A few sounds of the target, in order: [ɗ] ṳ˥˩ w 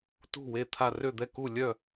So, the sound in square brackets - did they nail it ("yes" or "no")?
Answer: no